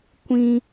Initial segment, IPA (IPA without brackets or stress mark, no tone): kʷ